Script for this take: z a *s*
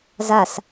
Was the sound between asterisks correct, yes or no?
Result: yes